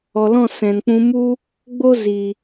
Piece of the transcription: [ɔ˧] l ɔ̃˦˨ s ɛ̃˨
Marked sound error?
yes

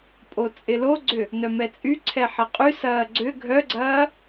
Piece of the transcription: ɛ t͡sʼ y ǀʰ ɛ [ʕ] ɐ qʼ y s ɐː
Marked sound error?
yes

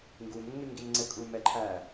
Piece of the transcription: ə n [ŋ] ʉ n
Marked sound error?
no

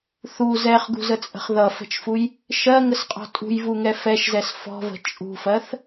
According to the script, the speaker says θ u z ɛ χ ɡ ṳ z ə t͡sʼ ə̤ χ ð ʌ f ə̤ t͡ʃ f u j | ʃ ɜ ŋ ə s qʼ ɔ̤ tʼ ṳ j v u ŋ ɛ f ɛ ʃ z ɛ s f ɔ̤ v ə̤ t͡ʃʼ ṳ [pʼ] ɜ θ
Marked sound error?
yes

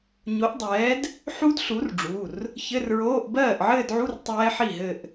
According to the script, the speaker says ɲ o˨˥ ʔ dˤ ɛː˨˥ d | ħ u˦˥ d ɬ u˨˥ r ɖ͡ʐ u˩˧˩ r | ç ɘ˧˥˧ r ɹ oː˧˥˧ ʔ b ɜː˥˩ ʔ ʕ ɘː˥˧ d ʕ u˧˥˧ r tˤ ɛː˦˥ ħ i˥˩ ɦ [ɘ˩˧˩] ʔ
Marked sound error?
yes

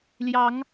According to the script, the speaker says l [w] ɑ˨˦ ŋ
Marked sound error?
yes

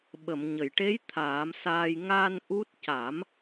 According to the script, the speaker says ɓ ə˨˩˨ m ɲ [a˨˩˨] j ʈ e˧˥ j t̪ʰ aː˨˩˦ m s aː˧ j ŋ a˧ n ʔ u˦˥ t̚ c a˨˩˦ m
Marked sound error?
yes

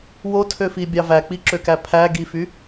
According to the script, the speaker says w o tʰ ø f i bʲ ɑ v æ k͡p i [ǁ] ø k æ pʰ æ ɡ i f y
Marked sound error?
no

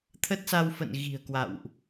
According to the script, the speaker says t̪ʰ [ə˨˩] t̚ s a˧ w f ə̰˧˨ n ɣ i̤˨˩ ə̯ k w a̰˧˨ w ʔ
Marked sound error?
yes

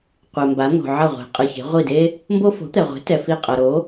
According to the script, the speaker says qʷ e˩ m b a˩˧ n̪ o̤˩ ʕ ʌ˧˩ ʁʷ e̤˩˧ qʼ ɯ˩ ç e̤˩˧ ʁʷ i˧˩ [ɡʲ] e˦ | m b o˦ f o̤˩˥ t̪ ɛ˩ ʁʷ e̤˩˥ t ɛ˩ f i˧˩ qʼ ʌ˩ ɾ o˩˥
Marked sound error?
yes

